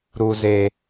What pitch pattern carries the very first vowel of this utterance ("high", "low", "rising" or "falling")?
high